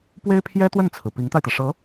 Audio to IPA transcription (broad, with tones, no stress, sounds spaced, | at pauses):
p w e˥ ɪ̯ pʰ j ɛ˥ t̪ w ə˥˩ n t͡sʰ ɹ̩˩ p i˧˥ ŋ t̪ a˧ ɪ̯ t̪ ä˩ ʂ ɤ˧˥